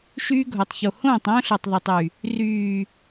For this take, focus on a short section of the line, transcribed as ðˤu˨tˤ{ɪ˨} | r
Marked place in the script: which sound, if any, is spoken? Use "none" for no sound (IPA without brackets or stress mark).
y˨